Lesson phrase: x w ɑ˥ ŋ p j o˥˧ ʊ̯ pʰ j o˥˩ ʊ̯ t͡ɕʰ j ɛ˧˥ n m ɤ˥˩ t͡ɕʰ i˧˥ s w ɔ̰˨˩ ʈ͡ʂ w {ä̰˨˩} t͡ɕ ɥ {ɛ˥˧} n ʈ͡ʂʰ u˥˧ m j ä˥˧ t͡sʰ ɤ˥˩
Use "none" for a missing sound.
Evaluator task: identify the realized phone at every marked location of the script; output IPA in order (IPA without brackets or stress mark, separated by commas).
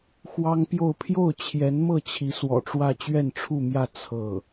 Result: ä˥˧, ɛ˥˧